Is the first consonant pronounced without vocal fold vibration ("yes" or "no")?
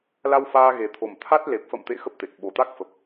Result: no